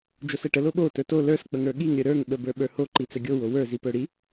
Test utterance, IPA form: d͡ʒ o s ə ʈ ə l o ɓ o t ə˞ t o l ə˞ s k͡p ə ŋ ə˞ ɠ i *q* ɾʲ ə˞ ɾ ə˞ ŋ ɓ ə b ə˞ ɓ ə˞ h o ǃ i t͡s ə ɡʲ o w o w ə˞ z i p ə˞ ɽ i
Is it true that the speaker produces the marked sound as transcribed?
no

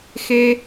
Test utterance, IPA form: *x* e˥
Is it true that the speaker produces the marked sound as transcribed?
yes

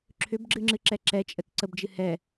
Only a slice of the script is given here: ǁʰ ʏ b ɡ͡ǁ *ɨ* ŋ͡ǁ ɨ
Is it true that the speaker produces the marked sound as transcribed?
yes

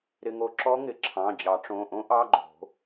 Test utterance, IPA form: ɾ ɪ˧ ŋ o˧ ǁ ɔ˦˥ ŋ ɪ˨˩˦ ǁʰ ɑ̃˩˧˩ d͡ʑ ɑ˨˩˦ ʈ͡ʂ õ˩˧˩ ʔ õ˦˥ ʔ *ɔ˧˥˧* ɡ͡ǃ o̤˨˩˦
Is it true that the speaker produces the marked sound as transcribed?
no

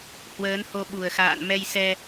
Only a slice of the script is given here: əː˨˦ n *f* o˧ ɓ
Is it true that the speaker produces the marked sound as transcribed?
no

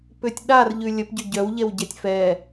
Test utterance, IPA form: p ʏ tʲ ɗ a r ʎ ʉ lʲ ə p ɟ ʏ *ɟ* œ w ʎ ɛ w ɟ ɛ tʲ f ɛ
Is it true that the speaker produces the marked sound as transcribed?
yes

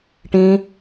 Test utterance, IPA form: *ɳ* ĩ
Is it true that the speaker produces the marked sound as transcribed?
no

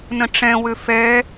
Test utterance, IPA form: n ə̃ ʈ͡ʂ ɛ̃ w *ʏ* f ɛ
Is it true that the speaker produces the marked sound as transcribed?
yes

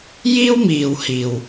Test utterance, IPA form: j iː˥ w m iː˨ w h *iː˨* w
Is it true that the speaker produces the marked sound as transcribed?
yes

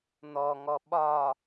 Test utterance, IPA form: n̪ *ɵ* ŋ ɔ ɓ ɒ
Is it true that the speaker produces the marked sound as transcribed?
no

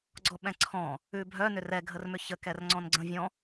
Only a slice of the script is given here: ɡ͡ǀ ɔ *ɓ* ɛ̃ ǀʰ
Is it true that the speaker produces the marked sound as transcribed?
yes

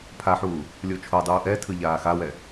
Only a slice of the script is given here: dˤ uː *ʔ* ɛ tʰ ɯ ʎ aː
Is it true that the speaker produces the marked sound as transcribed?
yes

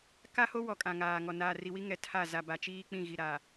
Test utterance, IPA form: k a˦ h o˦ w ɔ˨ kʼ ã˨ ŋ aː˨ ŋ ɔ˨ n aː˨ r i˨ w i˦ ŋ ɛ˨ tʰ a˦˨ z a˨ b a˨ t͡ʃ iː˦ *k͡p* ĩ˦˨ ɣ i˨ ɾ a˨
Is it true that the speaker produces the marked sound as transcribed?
yes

